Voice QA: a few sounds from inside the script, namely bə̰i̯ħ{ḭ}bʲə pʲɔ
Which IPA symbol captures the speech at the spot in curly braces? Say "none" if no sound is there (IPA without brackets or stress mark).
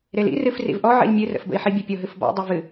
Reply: i